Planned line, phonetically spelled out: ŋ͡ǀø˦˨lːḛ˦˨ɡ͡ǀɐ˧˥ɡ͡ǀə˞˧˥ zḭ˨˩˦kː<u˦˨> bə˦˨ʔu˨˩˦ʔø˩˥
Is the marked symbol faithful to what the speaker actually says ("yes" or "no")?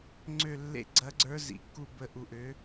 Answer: yes